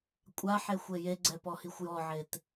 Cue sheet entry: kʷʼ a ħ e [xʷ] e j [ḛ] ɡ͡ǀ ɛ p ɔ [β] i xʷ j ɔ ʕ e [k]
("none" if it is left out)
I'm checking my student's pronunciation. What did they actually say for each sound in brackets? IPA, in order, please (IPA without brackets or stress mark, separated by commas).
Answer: xʷ, e, h, t